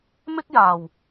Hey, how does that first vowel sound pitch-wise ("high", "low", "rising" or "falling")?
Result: high